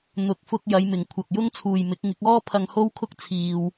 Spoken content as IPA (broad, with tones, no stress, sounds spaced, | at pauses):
n̪ ʊ˨˥ k̚ f ʊ˧ k̚ j ɐ˨˧ j m ɪ˨˩ ŋ kʷʰ ɐ˨ k̚ j ʊ˥ ŋ t͡sʰ uː˨ j m ɪ˨˥ k̚ ŋ ɪ˨˥ k̚ ɔː˥ pʰ ɐ˧ ŋ h o˥ w kʰ ʊ˥ k̚ t͡sʰ iː˧ w